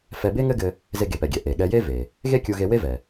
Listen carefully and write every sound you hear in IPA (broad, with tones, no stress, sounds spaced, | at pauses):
f ɛ˧ b e˥ ŋ ɘ˥ ɡ ɘ˧ | z e˧ ɡ e˩ p ɛ˩ ɡʲ ɛ˩ ʔ e˩ ɠ ɛ˧ j e˥ v e˩ | ɣ e˥ kʲ u˧ ɣ e˧ w e˥ v ɛ˩